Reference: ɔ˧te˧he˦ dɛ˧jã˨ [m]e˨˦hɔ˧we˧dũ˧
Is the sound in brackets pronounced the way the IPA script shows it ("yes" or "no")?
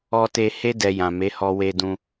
yes